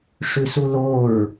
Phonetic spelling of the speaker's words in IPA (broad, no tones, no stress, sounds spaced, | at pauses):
ʂ ʉ s u l o ɹ